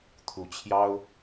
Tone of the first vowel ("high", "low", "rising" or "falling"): rising